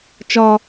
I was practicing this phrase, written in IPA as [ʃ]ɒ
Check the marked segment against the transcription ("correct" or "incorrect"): incorrect